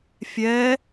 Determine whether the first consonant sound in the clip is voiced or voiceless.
voiceless